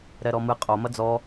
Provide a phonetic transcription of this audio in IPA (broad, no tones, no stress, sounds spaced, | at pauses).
ɾ ɛ ɾ ɔ m ɨ qʼ o m ɐ d͡z ɔ